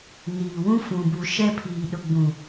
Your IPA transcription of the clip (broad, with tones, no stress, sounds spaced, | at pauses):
n iː˨ w ũ˦ f ũ˨ b u˨ ʃ ɛ˦ pʰ iː˨ ɗ ʊ˨ ɡ͡b ũ˨